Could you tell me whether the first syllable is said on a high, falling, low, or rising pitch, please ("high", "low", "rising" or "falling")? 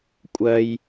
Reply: high